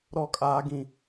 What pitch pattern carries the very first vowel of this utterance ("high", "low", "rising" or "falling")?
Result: high